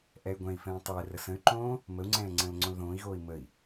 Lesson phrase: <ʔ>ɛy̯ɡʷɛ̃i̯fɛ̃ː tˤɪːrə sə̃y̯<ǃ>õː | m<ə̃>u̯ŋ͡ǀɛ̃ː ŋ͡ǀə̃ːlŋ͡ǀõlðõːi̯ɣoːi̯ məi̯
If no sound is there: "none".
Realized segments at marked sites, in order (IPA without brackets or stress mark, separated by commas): ʔ, ǃ, ə